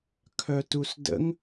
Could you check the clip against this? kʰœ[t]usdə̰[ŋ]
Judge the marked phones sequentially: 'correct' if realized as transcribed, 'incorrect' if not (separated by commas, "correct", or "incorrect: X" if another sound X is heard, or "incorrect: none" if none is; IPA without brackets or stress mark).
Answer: correct, correct